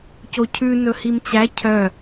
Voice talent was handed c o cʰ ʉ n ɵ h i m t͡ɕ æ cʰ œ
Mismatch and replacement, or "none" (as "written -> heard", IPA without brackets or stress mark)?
none